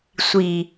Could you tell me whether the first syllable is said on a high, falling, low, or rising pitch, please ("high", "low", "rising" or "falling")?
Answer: low